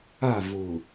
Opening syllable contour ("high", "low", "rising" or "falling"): falling